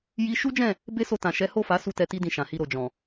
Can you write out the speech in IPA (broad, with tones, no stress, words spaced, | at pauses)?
ji˦ ʃu˦d͡ʒɛ̃˦˨ | be˦so˧tã˨ ʃɛ˨˦ho˦˨fa˨˦ su˦tɛ˧ti˦ dĩ˦˨ʃã˨hi˧ ɾo˨d͡ʒɔ̃˨